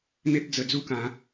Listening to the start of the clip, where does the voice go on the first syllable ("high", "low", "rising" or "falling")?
high